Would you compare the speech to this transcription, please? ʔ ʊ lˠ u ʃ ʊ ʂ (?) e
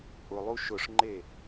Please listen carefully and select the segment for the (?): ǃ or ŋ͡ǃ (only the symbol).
ŋ͡ǃ